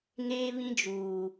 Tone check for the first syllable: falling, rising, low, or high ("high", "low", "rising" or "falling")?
high